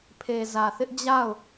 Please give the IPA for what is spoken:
pʰ e˨ z ä˨ θ ɪ˦ ʔ d͡ʑ a˦˨ ʊ̯

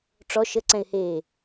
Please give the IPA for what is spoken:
ʈ͡ʂ ɔ ʃ ə ǀ ɛ̃ ɪ̯ h eː

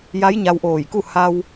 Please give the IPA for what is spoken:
j a˧˥ j ɲ a˧ w ʔ oː˧˩ j k u˥˨ h a˧ w

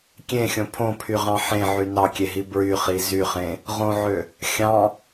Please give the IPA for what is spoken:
kʲ ẽ xʲ õ pʰ õ pʰ y ʁ ɑ̃ ħ ẽ ʕ y n ɑ kʲ e ɦ i b ɹ y χ i z y χ ẽ | ʁ õ ʕ ø | xʲ ɑ̃

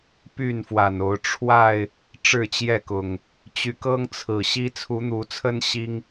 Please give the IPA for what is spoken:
p y˥˨ n f w a˨˩ n o˨˦ ʊ̯ ʈ͡ʂʰ w a˥˨ ɪ̯ | ʈ͡ʂ ɻ̩˥˨ t͡ɕ j ɛ˥˨ k ʊ˨˩ ŋ | t͡ɕ y˨˦ k ɤ˦ ŋ t͡sʰ ɹ̩˨˩ ɕ i˦ t͡sʰ u˨˦ n̪ u˨˦ t͡sʰ ə˦ n ɕ i˦ ŋ

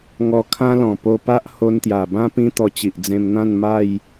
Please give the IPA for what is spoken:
ŋ ɔ˧ kʰ ã˦ l ɔ̃˨˩ p o˧ p a˦ ʔ h o˧ n t̪ j a˨˩ b ã˦ p ĩ˦ t̪ ɔ˧ t͡ɕ i˨ ʔ d͡z ẽ˧ m n̪ ã˥˧ n m a˥˧ j

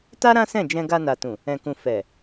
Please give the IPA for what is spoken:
t a˦ ɾ ã˦ s ɛ̃˦˨ d͡ʒ ɛ̃˧ ɡ a˧ n a˨ t ũ˨ | ɛ̃˨ k ũ˨ f ɛ˨

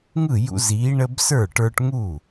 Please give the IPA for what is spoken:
ŋ ɯ˥˩ j ṵ˦ z iː˨˥ ɳ ə˦ b s ə˞˥˩ ʈ ə˞˦ ʈ ŋ u˥˩

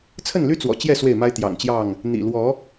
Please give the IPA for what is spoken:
t͡sʰ ə˥˨ n l y˦ t͡s w ɔ̰˨˩ t͡ɕ j ɛ˥˨ s w e˥˨ ɪ̯ m a˦ ɪ̯ t̪ j ɑ̰˨˩ ŋ t͡ɕ j ɑ˥˨ ŋ | n̪ ḭ˨˩ l w ɔ˨˦

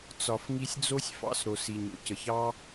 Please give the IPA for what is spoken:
t͡s ɒ˨ f ŋ i˧ sʲ d͡z o˦ sʲ f ɑ̰˧ s ɾ o˨ s i˨ ɲ o̰˨ c ə˨ ç ɑ˦

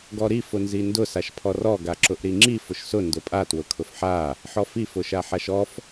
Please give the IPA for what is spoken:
ɡ ɔ ɾ i f ʊ n z i n d ʊ s a ʃ pʰ ɔ r ɔ ɡ a ǁ ʊ ʔ ɾ i ŋ͡ǁ i f ʊ ʃ s ʊ n d ʊ pʼ a t w ʊ kʰ ʊ f ħ a | ħ ɔ f i f ʊ ʃ a ħ a ʃ ɔ f

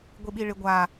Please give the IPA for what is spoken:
ɡʷ i ɓ i ɭ ɪ ɡʷ a

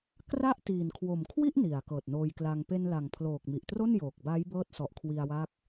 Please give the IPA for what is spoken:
k r a˥˩ ʔ t iː˨˩ n kʰ w o˨˩ m kʰ w i˥˩ ʔ n i˩˦ a̯ k ɤː˨˩ t̚ n oː˧ j k l a˧ ŋ p e˧ n l a˨˩ ŋ pʰ l oː˨˩ k̚ m i˨˩ ʔ t r o˥˩ n j oː˨˩ k̚ b a˦˥ j b ɤː˦˥ t̚ s ɔ˨˩ ʔ kʰ w i˧ a̯ w a˦˥ k̚

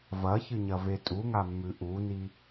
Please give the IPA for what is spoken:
v ɐ ç ɨ ɲ ɐ v e tʼ u ŋ a mː ʉ ʔ u n i

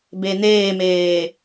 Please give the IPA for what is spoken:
b e n eː m eː

